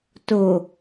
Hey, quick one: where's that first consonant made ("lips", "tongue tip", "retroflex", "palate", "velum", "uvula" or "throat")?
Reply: tongue tip